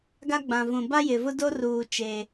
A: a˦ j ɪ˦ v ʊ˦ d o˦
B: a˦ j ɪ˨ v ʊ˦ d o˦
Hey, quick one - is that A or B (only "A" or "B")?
B